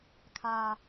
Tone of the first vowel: low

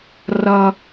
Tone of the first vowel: high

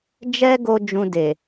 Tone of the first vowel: high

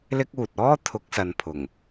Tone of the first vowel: high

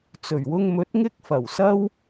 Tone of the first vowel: low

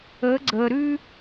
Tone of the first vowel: rising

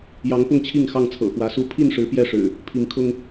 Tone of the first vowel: rising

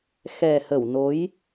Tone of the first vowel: low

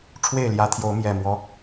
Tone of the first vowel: falling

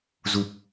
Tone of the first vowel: low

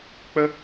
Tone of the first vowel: high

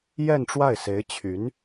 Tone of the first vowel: falling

